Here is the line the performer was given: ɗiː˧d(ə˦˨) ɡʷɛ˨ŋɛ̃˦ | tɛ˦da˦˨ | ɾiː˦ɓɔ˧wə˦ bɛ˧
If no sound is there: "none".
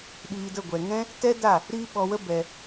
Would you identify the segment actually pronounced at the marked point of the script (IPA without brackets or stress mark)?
ə˦˨